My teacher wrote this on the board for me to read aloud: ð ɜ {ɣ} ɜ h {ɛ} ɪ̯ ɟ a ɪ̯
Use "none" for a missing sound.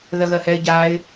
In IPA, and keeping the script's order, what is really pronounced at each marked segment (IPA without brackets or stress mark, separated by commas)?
ɣ, ɛ